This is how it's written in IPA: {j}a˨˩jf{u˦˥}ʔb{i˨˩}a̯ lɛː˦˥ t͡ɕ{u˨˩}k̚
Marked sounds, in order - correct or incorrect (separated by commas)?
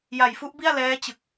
correct, correct, incorrect, incorrect